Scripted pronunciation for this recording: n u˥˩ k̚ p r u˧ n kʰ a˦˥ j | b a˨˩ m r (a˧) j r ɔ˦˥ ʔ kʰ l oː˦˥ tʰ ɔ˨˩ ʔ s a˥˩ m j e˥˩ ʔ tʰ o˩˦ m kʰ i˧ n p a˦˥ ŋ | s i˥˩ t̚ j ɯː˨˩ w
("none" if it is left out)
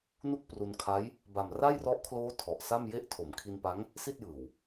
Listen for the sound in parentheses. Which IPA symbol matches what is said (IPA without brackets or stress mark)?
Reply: a˥˩